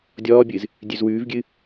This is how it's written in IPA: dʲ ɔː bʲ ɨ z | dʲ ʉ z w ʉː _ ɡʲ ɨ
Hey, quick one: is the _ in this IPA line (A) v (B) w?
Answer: A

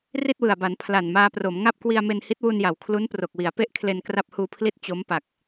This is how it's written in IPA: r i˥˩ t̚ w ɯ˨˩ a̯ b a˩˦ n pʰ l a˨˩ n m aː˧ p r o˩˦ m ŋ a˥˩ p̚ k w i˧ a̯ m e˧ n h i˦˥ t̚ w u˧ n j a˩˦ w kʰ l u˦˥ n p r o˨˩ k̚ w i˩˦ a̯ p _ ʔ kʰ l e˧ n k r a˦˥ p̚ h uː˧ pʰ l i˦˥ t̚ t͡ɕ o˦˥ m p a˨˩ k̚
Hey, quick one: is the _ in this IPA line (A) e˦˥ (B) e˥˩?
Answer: B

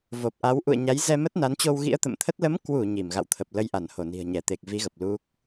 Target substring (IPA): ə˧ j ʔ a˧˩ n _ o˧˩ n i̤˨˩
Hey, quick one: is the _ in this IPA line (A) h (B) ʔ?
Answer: A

